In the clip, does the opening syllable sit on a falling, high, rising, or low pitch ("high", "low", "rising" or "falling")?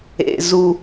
low